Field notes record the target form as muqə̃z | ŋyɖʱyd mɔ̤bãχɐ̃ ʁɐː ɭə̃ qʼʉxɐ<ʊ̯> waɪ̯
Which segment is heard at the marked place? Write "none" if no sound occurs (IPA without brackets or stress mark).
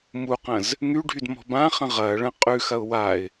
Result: ʊ̯